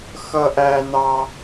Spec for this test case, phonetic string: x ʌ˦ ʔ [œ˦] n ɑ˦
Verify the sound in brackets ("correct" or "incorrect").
incorrect